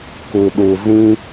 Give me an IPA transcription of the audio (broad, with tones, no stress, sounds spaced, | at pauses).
k u˨ ɗ u˨ z ĩ˦